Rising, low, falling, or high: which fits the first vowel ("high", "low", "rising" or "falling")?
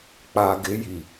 low